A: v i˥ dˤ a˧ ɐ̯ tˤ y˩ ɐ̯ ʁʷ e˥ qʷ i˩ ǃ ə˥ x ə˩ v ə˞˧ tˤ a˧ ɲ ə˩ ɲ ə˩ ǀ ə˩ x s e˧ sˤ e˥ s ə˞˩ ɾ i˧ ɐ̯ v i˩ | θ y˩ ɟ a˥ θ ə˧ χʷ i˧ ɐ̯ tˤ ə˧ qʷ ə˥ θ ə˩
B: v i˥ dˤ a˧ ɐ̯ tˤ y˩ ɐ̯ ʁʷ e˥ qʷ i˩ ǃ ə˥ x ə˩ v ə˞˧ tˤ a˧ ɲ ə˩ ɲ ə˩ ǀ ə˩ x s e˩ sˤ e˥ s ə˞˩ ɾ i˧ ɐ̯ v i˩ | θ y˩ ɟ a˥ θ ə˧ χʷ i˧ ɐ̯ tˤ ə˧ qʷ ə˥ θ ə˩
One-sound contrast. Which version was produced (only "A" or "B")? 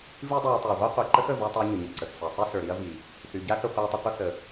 B